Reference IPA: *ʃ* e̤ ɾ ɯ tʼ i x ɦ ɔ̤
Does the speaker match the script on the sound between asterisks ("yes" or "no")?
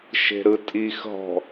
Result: yes